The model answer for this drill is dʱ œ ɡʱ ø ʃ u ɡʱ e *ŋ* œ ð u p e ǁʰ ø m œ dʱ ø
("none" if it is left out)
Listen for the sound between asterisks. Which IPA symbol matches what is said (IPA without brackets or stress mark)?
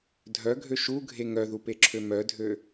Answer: ŋ